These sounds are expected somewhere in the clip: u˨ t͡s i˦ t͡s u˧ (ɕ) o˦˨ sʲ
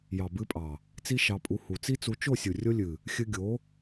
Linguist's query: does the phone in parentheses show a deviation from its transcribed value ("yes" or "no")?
yes